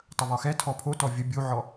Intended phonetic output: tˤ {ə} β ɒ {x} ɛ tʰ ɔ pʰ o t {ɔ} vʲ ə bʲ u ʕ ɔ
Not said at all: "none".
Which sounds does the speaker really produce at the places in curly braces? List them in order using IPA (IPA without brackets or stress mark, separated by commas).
ə, x, ɔ